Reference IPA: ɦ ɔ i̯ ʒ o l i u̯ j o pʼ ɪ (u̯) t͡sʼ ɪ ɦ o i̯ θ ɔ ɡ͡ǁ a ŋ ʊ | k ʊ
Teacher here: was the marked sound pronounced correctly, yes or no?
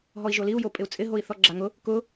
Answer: yes